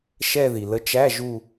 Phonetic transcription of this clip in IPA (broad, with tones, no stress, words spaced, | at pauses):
ʃɛ˥˧ði˩ lə˨˥t͡ʃæ˧˥˧ ʒu˥˧